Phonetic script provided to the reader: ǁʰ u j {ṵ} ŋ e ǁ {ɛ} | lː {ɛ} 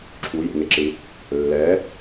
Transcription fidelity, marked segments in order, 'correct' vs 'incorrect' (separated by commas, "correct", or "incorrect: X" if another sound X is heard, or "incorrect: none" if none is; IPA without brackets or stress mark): correct, incorrect: ɨ, correct